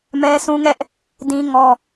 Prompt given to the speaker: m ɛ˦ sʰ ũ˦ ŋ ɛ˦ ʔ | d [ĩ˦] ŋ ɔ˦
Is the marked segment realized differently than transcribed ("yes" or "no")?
no